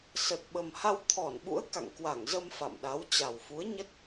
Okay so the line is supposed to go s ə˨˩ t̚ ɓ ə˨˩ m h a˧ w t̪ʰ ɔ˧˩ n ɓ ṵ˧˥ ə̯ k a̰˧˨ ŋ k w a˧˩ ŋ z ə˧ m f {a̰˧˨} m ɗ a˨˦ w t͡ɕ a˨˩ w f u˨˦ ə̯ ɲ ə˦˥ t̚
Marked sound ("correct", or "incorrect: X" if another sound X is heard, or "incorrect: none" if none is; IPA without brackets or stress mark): correct